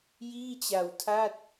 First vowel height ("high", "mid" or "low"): high